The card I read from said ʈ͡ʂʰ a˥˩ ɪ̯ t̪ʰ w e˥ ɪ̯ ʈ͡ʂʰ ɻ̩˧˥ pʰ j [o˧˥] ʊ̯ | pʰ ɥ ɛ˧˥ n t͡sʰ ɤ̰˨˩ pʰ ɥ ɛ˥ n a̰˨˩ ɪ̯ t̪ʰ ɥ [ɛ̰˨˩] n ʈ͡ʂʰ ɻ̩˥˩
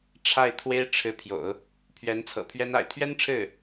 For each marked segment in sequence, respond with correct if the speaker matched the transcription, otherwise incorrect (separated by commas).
incorrect, incorrect